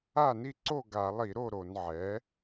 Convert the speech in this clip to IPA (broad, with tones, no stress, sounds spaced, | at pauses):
a˥˩ n i˥˩ ǀ o˥˩ ɡ a˧˩˧ lˠ i˧˩˧ ɾ o˥˩ ɾ o˧˩˧ n ʕ ɛ˩˥